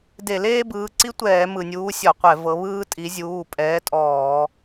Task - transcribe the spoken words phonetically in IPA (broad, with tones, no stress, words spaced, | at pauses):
de˧˩˧leː˥bɯː˩˧˩ǀi˥ tʷɛː˧˩˧mɯ˩nʲuː˨˦ sʲɔ˧˩˧qʷɛ˧˩˧vɤ˨˦βɯː˥ tʼi˨˦ zʲuː˩˧˩pʼɛː˨˦ tʼɔː˧˩˧